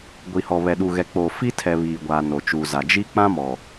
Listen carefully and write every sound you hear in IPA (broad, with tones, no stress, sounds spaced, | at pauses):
ɡʷ i˨ h ɔ˨ β ɛ˨ ɗ u˨ ɣ ɛ˨ k͡p oː˨ f i˦ tʰ ɛ˨ β iː˨ ɡʷ aː˨ n o˨ t͡ʃ u˨ z a˨ d͡ʒ i˦ k͡p ã˦ m ɔ˨